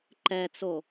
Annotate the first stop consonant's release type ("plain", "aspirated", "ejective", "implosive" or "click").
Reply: click